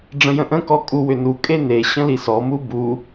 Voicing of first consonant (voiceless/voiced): voiced